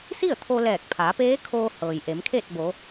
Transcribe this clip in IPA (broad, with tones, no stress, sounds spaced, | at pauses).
s i˥˨ ə̯ t̪ʰ o˧ l ɛː˧˩ k̚ pʰ aː˩˧ p eː˧˥ kʰ oː˧ h ɤː˩ j ʔ e˩˧ m kʰ e˥˨ t̚ b o˩˧